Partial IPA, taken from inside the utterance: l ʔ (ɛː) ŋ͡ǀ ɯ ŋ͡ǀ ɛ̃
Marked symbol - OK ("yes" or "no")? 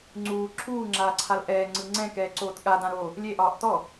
yes